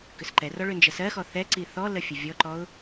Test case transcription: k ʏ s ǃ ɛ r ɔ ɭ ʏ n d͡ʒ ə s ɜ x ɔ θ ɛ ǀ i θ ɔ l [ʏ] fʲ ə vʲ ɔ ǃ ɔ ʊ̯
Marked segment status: incorrect: ə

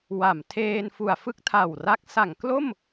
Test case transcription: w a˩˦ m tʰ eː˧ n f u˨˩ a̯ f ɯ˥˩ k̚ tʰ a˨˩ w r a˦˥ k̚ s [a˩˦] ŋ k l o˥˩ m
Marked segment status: correct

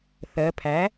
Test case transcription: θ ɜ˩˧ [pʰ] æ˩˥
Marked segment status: correct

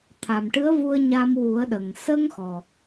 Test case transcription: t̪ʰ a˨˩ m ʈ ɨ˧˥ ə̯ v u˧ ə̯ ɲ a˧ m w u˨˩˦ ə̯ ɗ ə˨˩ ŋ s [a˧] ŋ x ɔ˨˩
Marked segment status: incorrect: ə˧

